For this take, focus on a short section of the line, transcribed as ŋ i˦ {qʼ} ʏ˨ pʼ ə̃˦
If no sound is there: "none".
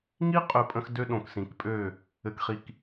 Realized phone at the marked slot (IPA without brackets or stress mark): qʼ